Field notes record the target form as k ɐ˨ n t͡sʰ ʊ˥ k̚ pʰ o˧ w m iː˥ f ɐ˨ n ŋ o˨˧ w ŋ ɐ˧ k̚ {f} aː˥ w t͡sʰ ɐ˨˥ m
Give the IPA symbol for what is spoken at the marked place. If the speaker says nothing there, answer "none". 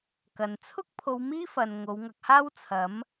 h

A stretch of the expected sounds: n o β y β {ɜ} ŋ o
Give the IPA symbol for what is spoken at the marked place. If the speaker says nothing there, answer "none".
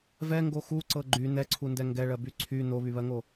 ɜ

